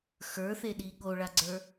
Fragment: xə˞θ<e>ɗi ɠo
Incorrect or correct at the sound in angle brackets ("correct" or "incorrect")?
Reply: correct